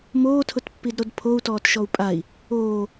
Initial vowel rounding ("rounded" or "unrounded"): rounded